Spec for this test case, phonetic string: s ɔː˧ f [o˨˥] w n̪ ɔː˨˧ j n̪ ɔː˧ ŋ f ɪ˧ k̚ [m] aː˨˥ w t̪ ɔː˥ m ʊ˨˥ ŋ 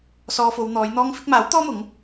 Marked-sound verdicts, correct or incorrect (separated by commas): incorrect, correct